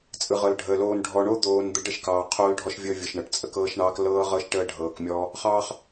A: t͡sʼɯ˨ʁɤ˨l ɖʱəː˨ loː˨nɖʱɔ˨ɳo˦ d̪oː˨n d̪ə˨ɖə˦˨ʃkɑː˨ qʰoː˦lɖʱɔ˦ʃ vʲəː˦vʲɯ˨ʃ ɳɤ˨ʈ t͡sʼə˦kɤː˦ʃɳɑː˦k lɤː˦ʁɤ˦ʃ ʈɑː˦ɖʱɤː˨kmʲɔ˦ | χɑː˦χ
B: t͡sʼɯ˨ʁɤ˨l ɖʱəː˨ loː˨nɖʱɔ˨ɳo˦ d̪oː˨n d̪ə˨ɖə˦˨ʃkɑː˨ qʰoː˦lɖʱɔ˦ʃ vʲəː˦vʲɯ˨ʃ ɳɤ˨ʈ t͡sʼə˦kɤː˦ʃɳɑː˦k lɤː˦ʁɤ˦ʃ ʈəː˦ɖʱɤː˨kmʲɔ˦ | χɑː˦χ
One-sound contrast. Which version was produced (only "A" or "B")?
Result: B